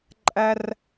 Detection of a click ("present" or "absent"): present